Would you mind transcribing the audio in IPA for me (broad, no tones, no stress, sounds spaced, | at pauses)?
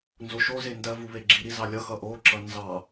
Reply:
n z o ʃ o z e n d ɜ v u β e ɡ͡ǁ i ɾ i z ɑ lʲ ʌ x ʌ ʔ o ǁ ʌ n z ɑ